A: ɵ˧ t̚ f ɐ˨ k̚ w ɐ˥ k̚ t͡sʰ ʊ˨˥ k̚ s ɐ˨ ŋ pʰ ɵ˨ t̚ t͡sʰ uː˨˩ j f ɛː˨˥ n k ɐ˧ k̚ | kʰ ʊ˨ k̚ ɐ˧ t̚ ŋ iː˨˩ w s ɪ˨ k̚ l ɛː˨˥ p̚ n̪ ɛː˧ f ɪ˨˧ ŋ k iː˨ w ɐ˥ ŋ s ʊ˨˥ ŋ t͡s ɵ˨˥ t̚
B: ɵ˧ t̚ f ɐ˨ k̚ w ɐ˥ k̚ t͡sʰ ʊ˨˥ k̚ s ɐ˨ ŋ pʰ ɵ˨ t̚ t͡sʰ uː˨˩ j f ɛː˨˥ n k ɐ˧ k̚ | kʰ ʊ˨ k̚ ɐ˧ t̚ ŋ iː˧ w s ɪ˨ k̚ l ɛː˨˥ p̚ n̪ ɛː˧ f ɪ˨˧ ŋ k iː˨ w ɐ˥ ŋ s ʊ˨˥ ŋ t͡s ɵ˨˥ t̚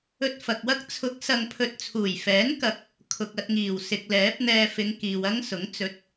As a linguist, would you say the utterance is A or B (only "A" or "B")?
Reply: A